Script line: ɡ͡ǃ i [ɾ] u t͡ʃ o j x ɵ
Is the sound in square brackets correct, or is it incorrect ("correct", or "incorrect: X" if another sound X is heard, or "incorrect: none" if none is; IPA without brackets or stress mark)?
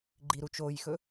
correct